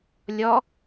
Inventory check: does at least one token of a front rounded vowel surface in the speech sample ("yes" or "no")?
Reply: no